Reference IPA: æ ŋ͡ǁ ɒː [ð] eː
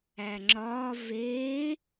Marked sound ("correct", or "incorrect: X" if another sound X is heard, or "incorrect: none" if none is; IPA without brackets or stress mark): incorrect: v